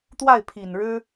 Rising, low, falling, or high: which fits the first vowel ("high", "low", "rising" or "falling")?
falling